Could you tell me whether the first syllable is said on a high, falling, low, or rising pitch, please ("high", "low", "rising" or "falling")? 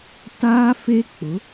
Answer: high